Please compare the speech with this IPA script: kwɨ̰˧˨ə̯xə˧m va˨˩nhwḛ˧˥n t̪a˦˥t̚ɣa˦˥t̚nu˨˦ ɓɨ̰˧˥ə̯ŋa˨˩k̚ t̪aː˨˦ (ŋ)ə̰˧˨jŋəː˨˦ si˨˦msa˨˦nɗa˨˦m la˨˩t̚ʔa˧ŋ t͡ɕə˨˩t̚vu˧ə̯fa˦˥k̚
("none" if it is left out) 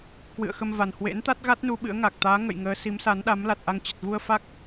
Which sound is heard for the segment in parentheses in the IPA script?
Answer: ŋ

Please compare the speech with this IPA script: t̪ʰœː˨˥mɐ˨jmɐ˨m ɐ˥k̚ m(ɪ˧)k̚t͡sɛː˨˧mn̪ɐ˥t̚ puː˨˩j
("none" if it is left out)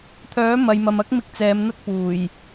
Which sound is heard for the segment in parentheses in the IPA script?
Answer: ɪ˧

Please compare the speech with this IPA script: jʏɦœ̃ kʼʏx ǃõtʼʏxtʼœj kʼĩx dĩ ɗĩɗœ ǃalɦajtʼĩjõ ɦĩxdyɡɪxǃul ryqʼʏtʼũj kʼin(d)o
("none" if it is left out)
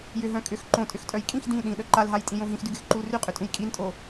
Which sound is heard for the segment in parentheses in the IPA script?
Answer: tʼ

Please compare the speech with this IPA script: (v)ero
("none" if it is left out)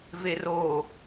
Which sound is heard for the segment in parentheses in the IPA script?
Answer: v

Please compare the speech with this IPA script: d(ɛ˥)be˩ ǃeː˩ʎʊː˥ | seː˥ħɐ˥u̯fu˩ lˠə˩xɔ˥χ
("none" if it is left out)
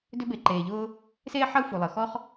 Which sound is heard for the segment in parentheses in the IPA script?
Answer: ʏ˥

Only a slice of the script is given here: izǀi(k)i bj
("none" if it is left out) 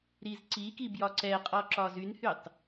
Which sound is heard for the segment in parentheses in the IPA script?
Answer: k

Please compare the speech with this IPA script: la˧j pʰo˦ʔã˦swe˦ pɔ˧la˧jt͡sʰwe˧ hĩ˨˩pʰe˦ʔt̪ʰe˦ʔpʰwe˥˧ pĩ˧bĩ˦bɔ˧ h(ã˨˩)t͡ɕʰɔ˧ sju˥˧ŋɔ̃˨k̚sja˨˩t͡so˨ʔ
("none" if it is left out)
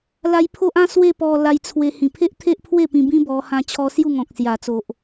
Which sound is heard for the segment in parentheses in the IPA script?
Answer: ã˧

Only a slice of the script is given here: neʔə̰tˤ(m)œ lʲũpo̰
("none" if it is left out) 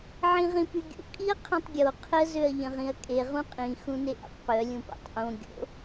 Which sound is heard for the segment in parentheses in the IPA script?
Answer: p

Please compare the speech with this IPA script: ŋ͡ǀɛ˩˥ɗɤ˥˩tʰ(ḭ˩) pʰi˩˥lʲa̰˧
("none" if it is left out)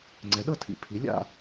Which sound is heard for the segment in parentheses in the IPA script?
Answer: ḭ˩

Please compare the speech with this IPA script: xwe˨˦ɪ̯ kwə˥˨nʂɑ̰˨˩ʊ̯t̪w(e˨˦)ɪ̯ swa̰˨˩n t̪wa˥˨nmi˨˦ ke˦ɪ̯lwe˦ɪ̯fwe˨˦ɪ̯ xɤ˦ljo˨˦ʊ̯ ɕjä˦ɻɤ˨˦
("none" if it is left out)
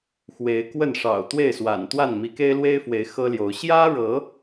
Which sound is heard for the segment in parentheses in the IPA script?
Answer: e˥˨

